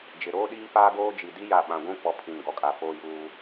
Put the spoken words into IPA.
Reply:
d͡ʒ ɪ˨ ɾ oː˦ ɗ iː˦ p aː˦ ɡ oː˦ d͡ʒ i˨ d i˦ j a˦˨ ɓ ã˨ ɡʷ ũ˦ k͡p ɔ˦ pʰ ĩ˦˨ n ɡ ɔ˦ kʼ a˦ f oː˦ j uː˦

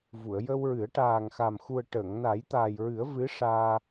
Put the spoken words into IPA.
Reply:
v u˨˩˨ ə̯ j ə˧ w ɹ ɨ˨˩˦ ə̯ ʈ aː˨˩ ŋ x a˨˩ m x u˨˩ ə̯ ʈ ə˨˩˨ ŋ n a˨˩˦ j t̪ aː˨˩ j ɹ ɨ˨˩˦ ə̯ v ɨ˧˥ ʂ aː˧

